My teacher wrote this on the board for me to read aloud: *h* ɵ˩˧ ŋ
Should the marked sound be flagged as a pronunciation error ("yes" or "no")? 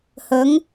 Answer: no